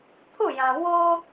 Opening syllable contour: falling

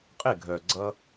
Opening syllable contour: falling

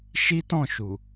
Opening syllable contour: high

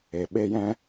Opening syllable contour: low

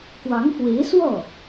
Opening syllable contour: rising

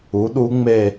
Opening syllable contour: rising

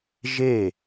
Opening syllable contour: falling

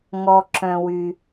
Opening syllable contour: low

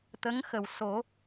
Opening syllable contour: rising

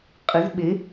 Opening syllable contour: rising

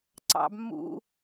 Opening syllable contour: high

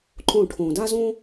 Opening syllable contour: falling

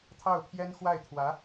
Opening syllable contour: falling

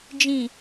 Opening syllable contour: low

